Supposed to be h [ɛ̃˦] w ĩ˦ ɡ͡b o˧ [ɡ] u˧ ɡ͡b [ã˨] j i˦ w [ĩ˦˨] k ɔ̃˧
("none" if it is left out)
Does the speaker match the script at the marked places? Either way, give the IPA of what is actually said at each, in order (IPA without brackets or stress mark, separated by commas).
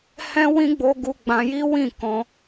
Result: ɛ̃˦, ɡ, ã˧, ĩ˦˨